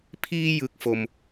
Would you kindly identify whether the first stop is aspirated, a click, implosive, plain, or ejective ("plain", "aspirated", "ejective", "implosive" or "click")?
aspirated